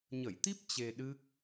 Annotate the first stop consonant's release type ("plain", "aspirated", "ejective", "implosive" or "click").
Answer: plain